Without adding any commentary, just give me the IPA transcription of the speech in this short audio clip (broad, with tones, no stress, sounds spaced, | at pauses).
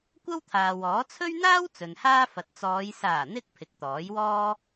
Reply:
kʷ ɐ˥ w t̪ʰ aː˨ w ɔː˨˥ t͡sʰ ɵ˥ ɥ n̪ aː˥ w t͡s ɵ˨ n h aː˥ f ɐ˨ t̚ t͡s ɔː˨˧ j s aː˨˩ n̪ ɪ˧ k̚ pʰ ɪ˨˥ k̚ t̪ ɔː˨˥ j w ɔː˥